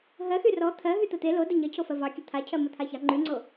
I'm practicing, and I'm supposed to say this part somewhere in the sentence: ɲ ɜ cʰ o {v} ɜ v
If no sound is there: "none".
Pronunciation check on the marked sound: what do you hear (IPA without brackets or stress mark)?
f